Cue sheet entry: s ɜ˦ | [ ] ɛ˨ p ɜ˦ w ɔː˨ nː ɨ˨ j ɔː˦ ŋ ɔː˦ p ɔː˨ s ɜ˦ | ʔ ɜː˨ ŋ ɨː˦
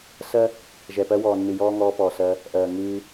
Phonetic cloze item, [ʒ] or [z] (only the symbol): ʒ